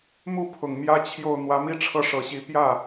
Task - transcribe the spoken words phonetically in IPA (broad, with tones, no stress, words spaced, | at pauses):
mu˥˩pʰʊ˨˩ŋ mjä˥ t͡ɕʰjo˥˩ʊ̯ n̪wä˧˥mi˥˧ʈ͡ʂʰɤ˥˩ ʂɤ˨˩ɕi˧˥ pjä˥˩